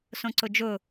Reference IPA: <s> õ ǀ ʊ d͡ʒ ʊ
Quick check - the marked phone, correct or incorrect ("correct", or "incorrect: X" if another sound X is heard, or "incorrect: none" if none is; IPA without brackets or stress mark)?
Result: correct